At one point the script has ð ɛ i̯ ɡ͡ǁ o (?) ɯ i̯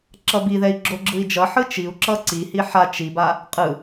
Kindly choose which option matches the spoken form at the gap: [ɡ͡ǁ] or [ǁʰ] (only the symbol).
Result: ɡ͡ǁ